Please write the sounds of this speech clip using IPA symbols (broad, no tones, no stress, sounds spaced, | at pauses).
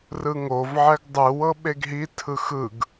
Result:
r ɯ ŋ o v ʕ ɛ ɡ dˤ ɯ w ɤ ɓ e ɡ ɦ i tʰ ɯ x ɯ ɡ